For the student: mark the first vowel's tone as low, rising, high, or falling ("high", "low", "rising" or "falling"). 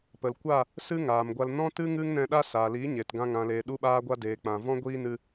low